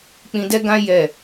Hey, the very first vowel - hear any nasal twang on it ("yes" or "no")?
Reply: yes